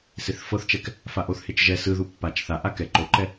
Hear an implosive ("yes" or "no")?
no